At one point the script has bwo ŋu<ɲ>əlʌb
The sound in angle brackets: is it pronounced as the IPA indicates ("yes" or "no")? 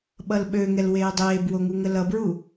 no